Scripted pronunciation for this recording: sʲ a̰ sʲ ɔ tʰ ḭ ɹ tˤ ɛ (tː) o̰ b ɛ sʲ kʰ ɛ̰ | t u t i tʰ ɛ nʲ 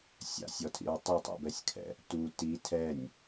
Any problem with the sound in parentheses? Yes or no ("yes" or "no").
yes